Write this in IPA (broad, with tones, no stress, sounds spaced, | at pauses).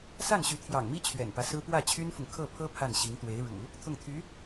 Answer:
s a˥˩ n ɕ y˧˥ t̪ʰ j ɑ̰˨˩ ŋ m i˥ t͡ɕʰ ɥ ɛ̰˨˩ n p ä˦ s ɹ̩˥ p w ä˥˩ t͡ɕʰ y˥ n f ʊ˨ ŋ kʰ ɤ˥˩ pʰ ɤ˥ pʰ a˥˩ n ɕ i˧˥ ŋ t̪ w e˧˥ ɪ̯ ɻ ṵ˨˩˦ | t̪ʰ ʊ˥˩ ŋ t̪ʰ y˧˥